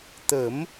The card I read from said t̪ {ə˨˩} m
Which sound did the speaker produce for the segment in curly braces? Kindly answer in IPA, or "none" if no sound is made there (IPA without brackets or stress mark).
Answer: ə˨˩˦